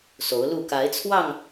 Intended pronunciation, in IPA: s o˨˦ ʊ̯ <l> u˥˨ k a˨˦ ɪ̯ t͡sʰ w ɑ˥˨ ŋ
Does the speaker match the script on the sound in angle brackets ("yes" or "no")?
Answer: yes